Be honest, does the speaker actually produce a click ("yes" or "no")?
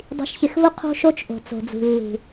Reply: no